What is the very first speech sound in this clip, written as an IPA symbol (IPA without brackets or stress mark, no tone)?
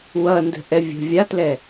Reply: w